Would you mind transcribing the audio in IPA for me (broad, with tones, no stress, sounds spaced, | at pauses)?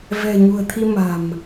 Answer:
v ɛ̤˨˩ ɲ ṳ˨˩ ə̯ t̪ʰ i˧ m a̤˨˩ m